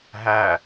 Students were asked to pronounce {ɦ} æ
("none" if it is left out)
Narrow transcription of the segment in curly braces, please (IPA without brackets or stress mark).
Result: ɦ